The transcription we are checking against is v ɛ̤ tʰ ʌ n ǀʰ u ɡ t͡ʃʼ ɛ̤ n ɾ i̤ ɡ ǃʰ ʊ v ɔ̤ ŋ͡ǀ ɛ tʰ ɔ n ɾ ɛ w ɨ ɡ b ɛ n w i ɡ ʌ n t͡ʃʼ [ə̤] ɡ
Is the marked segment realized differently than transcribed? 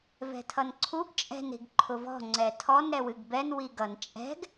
yes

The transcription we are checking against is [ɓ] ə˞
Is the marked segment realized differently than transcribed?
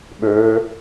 no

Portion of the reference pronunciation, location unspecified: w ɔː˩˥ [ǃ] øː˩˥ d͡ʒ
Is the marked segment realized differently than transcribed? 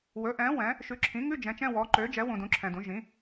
no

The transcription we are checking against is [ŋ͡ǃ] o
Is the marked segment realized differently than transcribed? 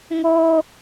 yes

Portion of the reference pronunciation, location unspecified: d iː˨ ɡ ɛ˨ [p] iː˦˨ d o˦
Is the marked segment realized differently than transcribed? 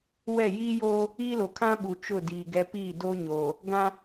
no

